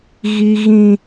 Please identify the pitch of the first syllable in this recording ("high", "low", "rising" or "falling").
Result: high